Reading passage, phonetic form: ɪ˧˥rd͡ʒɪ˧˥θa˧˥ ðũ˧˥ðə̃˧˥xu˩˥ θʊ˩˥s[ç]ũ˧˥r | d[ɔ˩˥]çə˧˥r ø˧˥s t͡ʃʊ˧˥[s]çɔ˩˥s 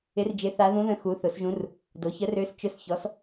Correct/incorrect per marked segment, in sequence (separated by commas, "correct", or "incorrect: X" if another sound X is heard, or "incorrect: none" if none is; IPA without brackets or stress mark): incorrect: ʒ, incorrect: o˩˥, correct